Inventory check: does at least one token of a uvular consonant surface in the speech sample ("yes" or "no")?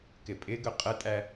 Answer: yes